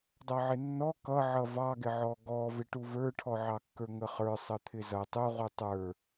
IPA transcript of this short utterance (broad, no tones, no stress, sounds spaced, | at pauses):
dˤ ʌ ʕ ɪ nː ɔ k ʌ ʕ ʌ v ɑ ɡ ɪ ʕ ɔ ɡ ɔ v ɪ ʈ u v ə˞ ʈʰ ɔ ʕ ɑ kː ə˞ ŋ ə χ ə˞ sˤ ə t̪ʰ ɪ z ʌ tˤ u ʁ u tˤ ə˞